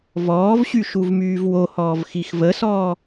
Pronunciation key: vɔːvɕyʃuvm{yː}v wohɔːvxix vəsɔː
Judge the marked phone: correct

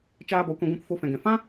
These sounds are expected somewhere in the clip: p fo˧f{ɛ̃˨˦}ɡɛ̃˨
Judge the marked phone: incorrect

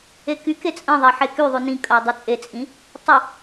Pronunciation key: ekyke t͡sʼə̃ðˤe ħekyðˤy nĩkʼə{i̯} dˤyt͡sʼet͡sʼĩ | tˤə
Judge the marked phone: correct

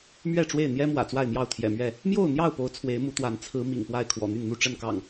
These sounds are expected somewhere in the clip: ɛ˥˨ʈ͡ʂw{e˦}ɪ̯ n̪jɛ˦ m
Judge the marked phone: incorrect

